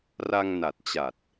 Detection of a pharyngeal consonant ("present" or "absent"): absent